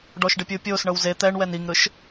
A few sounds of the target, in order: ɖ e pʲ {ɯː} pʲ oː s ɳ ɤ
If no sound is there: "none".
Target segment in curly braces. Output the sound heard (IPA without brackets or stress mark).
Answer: ɯː